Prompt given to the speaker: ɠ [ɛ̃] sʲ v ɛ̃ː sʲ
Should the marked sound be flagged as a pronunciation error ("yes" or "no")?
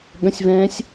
yes